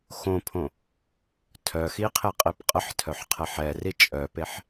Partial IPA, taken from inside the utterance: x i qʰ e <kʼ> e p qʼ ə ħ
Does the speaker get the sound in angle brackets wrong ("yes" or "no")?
yes